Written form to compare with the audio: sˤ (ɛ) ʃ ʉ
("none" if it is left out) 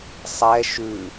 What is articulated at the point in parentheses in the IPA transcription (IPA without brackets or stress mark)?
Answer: ɛ